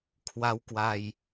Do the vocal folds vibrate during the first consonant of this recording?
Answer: no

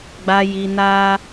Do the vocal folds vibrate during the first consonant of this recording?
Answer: yes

